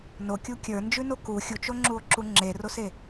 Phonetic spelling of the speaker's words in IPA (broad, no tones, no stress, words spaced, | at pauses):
nokʲu kʲə˞nd͡ʒʉno ku xʲut͡ʃoŋ͡ǁuo̯ǁu ŋ͡ǁerose